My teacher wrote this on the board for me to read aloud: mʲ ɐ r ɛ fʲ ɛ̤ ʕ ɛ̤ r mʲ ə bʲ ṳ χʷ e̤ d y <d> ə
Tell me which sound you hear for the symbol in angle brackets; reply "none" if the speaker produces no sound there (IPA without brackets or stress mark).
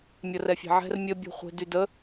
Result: d